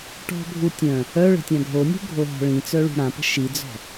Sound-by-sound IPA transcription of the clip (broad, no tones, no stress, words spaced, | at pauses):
ʈɔ̤bʱu tʲœ̃ | œ ɭə̤tʲãɡʱonʲṳ ɡʱoɦɔ̤ɭĩt͡sœ ɭṳɽãpə̤ ʃid͡zɔ̤